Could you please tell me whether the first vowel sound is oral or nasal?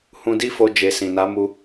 nasal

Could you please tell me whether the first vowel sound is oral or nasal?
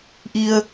oral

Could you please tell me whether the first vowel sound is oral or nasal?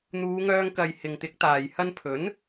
oral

